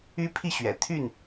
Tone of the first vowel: high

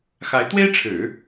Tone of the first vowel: rising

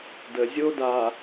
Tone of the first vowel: low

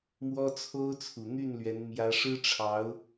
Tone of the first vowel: high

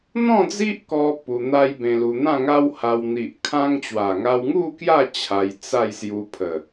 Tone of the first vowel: falling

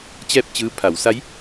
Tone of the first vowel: falling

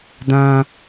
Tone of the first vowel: low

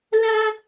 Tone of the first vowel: high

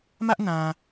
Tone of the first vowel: high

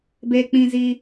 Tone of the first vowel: high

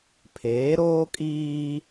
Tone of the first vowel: rising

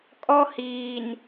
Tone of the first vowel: high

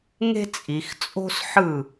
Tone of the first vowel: high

